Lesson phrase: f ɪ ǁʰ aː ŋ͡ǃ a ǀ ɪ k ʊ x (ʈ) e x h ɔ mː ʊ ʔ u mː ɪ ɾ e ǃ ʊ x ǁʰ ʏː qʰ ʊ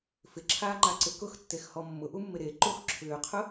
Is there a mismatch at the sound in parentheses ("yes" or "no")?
yes